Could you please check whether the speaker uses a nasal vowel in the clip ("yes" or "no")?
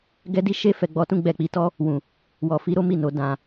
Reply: yes